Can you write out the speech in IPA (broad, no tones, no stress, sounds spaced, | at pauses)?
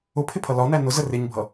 ʊ pʰ ɪ pʰ ʌ l ɒ n æ n ʊ z ə r ɪ ɲ bʱ ʌ